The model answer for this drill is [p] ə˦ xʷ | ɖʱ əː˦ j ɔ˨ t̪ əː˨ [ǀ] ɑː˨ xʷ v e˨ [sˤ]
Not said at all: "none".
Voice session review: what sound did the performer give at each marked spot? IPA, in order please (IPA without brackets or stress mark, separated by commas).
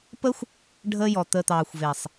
p, t̪, sˤ